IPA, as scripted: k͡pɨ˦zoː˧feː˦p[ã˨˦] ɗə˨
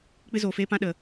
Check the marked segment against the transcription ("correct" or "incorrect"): incorrect